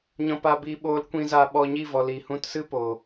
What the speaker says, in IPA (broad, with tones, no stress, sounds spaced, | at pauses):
ɲ ɔ̃˧ p a˧ b iː˧ ɓ oː˧ l kʷ ĩ˧ z a˧ ɓ ɔ˧ ɲ i˦˨ v ɔ˨ l i˨ h ũ˧ t s ɨ˦ p o˨